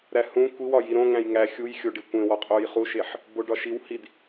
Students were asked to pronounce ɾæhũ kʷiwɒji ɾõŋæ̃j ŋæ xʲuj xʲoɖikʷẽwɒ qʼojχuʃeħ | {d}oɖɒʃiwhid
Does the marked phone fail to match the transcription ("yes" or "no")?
yes